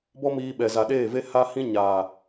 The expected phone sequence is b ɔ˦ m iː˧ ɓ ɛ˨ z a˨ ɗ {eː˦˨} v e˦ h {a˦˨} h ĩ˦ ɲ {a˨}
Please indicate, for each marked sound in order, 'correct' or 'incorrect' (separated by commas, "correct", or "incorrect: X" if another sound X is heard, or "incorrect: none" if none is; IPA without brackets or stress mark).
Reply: correct, incorrect: a˦, incorrect: aː˨